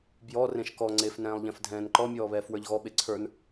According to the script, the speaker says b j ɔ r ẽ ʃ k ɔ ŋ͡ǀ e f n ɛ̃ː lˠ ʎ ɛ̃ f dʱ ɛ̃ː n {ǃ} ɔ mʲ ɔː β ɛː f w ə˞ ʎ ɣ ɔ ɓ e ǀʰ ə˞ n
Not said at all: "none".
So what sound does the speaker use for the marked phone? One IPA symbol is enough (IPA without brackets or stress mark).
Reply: ǃ